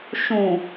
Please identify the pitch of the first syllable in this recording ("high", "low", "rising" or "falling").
low